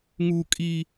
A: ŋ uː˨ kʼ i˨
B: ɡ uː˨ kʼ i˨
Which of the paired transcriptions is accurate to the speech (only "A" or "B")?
A